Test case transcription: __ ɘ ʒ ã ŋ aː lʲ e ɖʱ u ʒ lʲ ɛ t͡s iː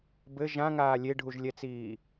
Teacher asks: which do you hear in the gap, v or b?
b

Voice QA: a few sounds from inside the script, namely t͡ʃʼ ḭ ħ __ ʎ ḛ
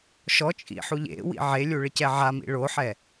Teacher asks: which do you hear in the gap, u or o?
u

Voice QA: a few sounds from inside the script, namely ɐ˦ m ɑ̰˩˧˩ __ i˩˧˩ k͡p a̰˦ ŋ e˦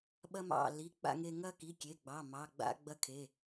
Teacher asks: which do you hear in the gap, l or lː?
l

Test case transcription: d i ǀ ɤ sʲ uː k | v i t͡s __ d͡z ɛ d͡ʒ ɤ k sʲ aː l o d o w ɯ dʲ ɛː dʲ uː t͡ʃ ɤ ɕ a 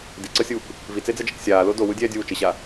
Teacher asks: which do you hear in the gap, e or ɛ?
e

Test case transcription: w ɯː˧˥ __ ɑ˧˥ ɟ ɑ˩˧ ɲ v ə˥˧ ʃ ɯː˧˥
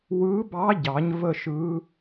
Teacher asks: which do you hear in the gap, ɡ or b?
b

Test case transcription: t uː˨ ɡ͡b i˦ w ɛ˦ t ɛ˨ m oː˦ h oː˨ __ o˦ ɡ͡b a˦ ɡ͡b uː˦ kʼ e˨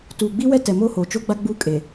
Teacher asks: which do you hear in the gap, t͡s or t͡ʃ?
t͡ʃ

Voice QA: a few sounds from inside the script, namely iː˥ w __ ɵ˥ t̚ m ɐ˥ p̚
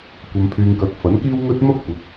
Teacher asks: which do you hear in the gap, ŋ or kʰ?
ŋ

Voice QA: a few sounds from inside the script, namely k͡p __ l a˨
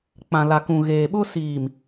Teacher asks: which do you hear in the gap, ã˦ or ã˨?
ã˨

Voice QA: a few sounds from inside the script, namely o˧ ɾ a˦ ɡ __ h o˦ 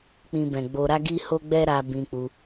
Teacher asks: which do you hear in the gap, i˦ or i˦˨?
i˦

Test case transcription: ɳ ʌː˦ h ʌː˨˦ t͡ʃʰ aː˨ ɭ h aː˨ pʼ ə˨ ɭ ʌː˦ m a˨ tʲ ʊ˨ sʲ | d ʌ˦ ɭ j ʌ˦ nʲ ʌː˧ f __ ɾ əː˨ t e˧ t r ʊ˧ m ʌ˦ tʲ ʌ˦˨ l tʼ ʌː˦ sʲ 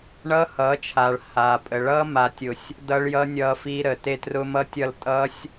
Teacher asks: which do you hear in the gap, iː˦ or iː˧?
iː˧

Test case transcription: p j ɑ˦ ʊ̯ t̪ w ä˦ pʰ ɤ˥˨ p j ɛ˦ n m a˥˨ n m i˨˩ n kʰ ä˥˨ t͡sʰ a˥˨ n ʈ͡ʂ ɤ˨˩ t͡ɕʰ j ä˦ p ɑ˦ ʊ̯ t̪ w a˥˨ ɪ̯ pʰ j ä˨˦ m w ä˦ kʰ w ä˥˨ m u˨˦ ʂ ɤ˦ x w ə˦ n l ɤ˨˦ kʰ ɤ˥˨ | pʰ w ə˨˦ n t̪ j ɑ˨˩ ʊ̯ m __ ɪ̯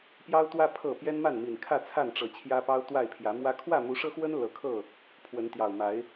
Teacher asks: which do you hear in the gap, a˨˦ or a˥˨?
a˨˦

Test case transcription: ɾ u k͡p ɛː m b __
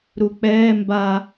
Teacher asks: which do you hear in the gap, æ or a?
a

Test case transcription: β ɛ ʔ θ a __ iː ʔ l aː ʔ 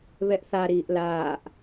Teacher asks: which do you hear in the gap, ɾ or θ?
ɾ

